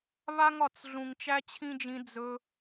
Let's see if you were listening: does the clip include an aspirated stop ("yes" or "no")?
yes